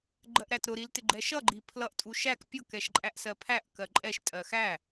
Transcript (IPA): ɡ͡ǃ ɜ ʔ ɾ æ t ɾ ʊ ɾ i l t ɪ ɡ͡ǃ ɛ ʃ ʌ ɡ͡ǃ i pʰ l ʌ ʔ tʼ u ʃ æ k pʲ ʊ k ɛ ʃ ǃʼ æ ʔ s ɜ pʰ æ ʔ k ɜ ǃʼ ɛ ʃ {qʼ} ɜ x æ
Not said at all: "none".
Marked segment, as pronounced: tʼ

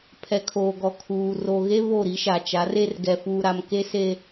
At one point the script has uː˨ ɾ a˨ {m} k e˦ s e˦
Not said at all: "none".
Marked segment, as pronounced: m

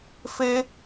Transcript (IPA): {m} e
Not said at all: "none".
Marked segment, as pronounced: f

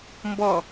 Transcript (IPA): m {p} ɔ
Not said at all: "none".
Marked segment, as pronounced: b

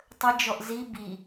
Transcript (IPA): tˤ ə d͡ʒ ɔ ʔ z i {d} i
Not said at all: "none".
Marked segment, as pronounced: b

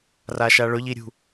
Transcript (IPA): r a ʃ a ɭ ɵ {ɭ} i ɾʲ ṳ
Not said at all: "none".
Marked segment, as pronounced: ʎ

